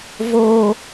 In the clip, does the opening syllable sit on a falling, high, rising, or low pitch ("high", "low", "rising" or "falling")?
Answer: high